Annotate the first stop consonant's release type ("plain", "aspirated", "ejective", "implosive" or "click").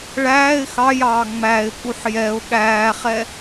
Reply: ejective